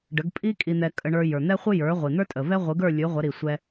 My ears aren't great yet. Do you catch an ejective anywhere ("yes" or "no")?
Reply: yes